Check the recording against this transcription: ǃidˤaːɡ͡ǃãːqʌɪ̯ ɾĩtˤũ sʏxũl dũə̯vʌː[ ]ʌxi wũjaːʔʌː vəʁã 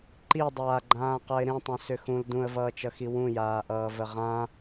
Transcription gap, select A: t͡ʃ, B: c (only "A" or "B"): A